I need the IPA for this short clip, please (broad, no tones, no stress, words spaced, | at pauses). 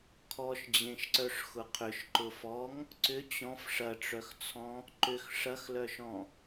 kʰɔʃd͡ʑẽʃǀœʂ xʊqʰʏʃ ǃʊfɔŋ | ǀʏ t͡ɕɔ̃f ʂɐʈ͡ʂœxt͡sʰɔ̃ | ǃʏx ʂɐxlœʃɔ̃